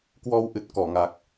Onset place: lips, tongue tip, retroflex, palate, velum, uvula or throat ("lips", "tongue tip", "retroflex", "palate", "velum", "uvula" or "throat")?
velum